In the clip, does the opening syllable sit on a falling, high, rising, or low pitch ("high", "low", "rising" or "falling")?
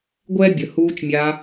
high